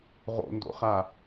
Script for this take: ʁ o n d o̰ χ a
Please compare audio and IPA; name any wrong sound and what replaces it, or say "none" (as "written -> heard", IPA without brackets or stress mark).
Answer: o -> o̰